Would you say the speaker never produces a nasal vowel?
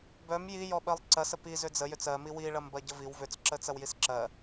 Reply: yes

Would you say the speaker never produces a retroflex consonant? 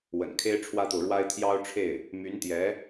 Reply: no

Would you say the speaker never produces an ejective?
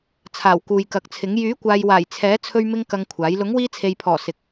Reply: yes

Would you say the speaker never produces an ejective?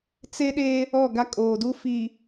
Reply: no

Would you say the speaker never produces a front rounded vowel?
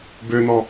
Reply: no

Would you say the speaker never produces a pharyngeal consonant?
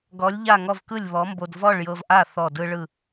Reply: yes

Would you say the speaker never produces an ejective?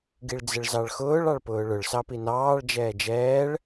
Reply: yes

